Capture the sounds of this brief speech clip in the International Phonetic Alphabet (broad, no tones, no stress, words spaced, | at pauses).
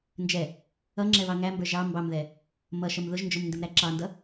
nd͡ʒɛ | ʌŋ͡ǁɛβɑ ŋæmbə˞ ʒɑ mbɑmðɛ | mʌʃʌm ðʊʒnd͡ʒʊmndɪmɾæ ǁɑndʌ